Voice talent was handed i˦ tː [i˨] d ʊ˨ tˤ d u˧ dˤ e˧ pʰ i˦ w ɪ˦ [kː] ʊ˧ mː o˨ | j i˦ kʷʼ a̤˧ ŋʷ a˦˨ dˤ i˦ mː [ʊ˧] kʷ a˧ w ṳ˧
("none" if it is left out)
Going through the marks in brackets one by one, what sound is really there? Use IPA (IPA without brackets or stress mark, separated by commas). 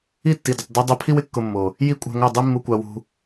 i˨, kː, u˧